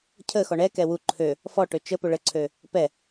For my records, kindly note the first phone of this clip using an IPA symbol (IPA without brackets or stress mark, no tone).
cʰ